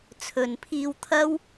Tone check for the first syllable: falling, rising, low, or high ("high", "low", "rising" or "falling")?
low